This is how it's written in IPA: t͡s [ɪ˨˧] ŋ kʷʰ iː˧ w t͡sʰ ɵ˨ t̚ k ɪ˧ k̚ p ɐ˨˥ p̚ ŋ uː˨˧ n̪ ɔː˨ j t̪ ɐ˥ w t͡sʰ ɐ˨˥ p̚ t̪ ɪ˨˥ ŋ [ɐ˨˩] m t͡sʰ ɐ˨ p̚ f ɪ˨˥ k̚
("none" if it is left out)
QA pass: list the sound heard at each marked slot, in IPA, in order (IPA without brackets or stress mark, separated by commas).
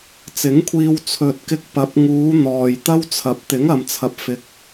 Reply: ɪ˨˥, ɐ˨